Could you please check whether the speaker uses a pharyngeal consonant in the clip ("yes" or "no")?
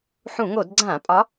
yes